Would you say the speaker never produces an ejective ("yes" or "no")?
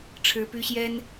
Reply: yes